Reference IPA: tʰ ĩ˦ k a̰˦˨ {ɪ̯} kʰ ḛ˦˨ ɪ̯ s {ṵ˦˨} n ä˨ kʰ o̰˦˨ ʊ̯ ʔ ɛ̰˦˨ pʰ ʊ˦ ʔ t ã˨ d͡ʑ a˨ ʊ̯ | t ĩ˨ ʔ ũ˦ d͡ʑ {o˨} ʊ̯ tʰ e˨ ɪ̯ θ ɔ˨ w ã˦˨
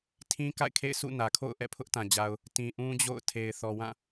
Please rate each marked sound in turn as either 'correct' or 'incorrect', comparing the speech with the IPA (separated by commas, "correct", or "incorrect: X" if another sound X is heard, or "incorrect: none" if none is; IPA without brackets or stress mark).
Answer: correct, correct, incorrect: o̰˦˨